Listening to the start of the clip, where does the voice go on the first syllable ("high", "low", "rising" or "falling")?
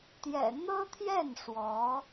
low